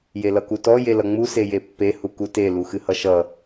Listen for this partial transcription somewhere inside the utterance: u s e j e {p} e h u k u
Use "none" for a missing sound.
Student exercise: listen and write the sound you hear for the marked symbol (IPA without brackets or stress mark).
pː